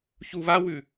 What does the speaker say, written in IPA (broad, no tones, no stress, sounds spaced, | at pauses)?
ç u β a w ʉ